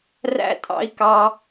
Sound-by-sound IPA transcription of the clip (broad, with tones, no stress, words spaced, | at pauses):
ræ̰˦tʼɑ̰˦i̯kɑ˦